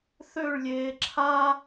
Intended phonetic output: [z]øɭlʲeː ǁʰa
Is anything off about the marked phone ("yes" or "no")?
yes